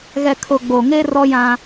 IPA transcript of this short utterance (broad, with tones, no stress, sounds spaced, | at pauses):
ɣ ɛ˨ kʰ ʊ˨ ɡ͡b o˨ ŋ e˦ r ɔ˦ j ã˦